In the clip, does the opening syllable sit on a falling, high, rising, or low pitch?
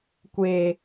low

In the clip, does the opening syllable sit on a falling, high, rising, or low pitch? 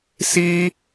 high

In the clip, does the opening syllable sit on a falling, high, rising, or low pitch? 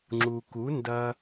low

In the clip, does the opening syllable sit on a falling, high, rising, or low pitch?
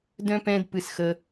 high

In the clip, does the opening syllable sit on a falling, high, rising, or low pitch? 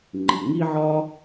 low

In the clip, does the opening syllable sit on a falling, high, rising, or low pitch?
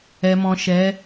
low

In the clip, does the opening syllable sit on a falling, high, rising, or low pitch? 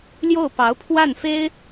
falling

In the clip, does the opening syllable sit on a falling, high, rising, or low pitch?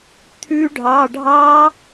rising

